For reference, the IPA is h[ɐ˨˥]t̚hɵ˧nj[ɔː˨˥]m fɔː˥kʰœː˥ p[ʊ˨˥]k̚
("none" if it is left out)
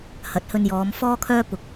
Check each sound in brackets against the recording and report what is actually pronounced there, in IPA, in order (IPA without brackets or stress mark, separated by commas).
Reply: ɐ˨˥, ɔː˨˧, ʊ˨